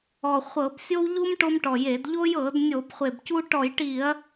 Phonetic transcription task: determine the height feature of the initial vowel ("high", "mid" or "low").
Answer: mid